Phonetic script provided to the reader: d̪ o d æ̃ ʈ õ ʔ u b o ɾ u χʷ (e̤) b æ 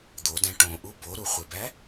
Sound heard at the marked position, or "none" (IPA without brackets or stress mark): e